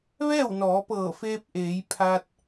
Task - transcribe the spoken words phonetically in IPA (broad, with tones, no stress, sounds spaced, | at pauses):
ʋ ɛː˥˨ w n ɔː˩˧ p ɤː˧˩ f eː˧ p̚ ʔ eː˩˧ j pʰ a˧ t̚